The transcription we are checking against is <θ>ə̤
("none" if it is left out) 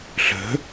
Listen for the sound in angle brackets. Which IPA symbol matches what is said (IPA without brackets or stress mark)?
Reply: ɬ